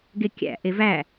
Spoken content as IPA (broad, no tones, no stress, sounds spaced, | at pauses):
ɡ e kʲ æ̰ ʔ e v æ